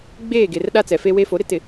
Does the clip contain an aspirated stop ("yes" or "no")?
no